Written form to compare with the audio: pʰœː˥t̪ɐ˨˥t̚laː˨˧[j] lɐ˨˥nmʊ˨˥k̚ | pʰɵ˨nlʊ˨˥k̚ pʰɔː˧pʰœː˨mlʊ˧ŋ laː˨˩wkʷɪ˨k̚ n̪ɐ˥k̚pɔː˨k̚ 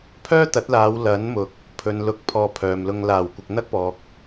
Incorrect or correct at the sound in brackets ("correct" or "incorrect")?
incorrect